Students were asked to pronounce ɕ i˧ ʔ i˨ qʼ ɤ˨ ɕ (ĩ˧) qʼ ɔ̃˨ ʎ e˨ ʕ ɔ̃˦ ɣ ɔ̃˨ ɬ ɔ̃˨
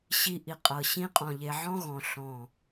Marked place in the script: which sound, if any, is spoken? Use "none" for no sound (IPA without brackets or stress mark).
ĩ˧